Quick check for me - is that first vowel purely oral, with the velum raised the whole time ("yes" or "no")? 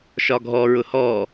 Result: yes